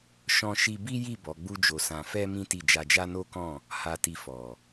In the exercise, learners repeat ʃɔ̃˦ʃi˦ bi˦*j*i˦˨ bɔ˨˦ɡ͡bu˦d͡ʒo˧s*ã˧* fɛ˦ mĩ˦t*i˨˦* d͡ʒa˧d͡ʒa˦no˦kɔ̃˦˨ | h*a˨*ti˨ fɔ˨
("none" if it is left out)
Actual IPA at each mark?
j, ã˧, i˦˨, a˨

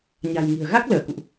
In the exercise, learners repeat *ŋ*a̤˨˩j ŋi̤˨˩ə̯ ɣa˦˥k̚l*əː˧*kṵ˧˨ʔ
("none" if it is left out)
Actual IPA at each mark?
ɲ, əː˧˩

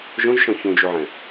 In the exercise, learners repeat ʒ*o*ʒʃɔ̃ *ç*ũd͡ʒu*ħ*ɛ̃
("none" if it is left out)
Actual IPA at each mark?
õ, ç, ʕ

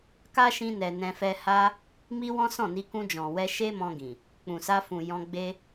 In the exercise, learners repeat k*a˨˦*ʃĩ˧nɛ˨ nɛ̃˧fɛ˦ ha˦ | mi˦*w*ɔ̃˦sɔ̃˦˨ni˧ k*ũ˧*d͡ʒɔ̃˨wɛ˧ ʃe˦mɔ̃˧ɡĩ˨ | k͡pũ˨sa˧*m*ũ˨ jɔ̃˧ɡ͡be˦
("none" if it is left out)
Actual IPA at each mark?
a˦, w, ũ˧, f

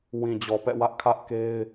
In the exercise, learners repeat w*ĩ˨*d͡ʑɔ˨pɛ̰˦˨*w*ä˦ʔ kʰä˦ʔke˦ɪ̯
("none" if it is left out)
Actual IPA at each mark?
ĩ˨, w

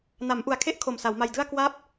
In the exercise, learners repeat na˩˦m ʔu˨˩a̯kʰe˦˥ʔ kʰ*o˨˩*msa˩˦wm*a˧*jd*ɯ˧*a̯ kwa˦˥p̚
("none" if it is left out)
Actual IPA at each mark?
o˨˩, a˧, ɯ˥˩

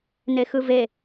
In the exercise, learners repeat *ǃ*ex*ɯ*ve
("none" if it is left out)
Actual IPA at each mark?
n, ɯ

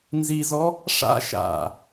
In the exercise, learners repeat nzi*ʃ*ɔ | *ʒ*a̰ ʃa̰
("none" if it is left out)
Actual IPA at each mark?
z, ʂ

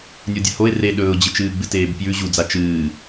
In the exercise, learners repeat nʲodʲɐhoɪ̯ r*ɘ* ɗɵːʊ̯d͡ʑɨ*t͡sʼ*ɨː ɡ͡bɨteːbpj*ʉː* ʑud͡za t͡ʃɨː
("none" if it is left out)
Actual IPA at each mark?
e, t͡ʃ, ʉ

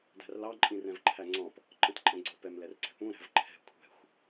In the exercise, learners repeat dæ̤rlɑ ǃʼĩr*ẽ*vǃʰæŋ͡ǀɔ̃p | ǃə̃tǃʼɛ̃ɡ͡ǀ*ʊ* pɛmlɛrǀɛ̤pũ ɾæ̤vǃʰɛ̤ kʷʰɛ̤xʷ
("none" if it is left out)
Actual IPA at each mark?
ɛ̃, ʊ

